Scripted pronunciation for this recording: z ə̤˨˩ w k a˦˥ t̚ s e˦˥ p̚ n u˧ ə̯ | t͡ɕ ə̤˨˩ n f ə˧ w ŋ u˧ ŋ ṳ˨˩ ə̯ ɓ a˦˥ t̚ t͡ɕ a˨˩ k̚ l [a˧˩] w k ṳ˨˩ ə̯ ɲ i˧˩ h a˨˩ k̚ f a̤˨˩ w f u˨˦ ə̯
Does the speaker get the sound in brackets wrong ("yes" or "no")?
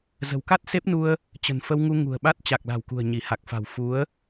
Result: yes